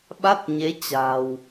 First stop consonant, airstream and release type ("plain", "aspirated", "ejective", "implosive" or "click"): implosive